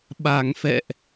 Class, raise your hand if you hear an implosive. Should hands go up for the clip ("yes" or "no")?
yes